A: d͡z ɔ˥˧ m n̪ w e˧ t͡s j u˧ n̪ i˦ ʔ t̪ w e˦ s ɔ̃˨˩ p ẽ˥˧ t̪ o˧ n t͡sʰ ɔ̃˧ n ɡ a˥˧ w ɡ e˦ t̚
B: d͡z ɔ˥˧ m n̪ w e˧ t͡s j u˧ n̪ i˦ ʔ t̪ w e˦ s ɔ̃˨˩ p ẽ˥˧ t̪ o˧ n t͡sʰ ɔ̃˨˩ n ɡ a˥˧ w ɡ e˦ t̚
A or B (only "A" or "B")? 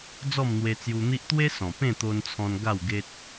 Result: A